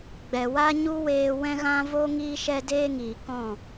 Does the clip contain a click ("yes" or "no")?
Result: no